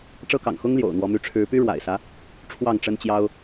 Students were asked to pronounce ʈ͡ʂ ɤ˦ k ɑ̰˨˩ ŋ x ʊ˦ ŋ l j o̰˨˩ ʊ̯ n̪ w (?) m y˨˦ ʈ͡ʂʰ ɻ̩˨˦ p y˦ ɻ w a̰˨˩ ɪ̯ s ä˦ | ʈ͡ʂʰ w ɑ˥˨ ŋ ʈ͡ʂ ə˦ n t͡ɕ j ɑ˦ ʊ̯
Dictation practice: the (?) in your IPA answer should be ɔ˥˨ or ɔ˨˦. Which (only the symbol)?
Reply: ɔ˨˦